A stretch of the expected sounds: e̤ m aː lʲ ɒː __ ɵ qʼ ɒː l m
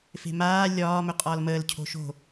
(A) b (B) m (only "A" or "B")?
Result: B